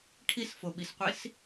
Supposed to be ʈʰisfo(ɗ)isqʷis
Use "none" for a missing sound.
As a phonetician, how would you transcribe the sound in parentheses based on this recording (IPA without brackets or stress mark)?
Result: ɓ